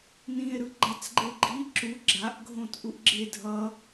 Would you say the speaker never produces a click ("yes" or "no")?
no